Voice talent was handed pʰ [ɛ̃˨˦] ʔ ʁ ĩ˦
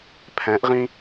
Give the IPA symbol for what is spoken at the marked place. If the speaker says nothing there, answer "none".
ɛ̃˨˦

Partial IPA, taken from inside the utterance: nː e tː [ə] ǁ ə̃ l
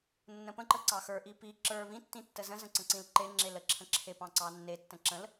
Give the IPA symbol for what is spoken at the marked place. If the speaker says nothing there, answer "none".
ə̃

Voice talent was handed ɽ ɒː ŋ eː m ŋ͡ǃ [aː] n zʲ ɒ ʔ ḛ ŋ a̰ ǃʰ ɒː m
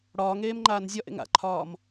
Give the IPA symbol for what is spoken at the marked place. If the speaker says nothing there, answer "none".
aː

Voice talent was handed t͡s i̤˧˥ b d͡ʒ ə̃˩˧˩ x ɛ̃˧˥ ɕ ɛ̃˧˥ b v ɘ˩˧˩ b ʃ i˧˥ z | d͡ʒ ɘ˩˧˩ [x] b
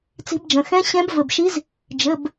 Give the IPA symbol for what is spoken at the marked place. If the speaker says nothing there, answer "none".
none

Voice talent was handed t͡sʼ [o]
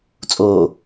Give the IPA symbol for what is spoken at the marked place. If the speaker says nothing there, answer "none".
oː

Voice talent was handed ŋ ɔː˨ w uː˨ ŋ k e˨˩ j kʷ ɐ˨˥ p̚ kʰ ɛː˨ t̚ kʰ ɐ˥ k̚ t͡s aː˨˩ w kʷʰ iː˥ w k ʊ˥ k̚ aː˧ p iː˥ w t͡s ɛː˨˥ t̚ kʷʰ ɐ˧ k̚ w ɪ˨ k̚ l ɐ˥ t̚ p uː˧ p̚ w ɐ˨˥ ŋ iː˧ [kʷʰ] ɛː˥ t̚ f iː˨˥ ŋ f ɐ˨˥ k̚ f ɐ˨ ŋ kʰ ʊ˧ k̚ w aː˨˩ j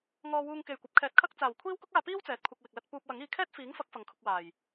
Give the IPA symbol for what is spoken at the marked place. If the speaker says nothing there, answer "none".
kʰ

